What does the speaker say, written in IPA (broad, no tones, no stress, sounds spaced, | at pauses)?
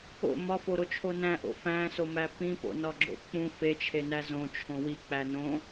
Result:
o̰ m ɒ f o ɾ o t͡ʃʰ o n æ̃ ʔ o̰ f æ̃ s o m æ p ĩ p o̰ n ɒ ɡ͡ǁ o̰ k͡p ũ f e t͡ʃʰ e n æ z õ t͡ʃʰ õ w i k͡p æ n õ